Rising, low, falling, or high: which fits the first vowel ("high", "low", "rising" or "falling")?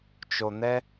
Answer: low